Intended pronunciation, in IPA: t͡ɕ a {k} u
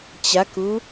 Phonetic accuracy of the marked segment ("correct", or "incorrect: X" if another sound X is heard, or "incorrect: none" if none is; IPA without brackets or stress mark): correct